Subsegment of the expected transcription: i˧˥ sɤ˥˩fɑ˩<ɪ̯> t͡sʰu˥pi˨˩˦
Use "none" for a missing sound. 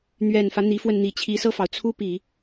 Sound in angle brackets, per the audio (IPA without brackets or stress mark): ʊ̯